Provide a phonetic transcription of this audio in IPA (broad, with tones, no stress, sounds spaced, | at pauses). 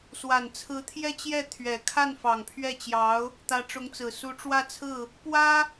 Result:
s w a˨˩ n t͡sʰ ɹ̩˧˥ t̪ʰ j ɛ˥˧ t͡ɕ j ɛ˥˩ t̪ʰ ɥ ɛ˨˩ kʰ a˥˩ n f ɑ˨˩ ŋ pʰ ɥ ɛ˥˩ t͡ɕ j ɑ˧˥ ʊ̯ | t̪ ä˧˥ ʈ͡ʂ ʊ˧˥ ŋ t͡s ɹ̩˨˩ s u˧˥ ʈ͡ʂ w ä˥˧ t͡sʰ ɹ̩˥˩ | p w ä˥